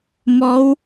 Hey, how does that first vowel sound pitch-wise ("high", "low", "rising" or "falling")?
rising